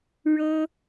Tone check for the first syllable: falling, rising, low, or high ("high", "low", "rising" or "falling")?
high